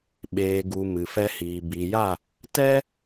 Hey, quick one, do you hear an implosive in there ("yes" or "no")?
yes